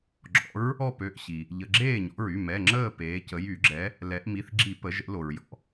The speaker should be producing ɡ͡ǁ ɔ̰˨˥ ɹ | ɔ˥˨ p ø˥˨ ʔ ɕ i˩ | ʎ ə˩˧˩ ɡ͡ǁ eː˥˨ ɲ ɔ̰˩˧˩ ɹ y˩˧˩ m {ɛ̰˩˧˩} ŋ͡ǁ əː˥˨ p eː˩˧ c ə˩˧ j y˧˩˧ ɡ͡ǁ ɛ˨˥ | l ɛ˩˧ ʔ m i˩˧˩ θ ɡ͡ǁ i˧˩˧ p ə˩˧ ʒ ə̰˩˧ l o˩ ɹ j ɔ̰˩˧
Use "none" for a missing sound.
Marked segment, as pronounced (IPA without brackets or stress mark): ɛ˩˧˩